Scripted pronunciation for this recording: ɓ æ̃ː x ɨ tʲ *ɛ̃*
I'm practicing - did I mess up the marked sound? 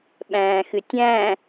yes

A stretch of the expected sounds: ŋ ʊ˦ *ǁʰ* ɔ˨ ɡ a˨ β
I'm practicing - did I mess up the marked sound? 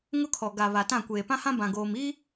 yes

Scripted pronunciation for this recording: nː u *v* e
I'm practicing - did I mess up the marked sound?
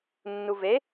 no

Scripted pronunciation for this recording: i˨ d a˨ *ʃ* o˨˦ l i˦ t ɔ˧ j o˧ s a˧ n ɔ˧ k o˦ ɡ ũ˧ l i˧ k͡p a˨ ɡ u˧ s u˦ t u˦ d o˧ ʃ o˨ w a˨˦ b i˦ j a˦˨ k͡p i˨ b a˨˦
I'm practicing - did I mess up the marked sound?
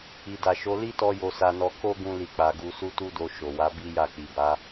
no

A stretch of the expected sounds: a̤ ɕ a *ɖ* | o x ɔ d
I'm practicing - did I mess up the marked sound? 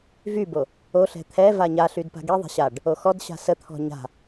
no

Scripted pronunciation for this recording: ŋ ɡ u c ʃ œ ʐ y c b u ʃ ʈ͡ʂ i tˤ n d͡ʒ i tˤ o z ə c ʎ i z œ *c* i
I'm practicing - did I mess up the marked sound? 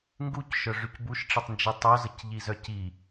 no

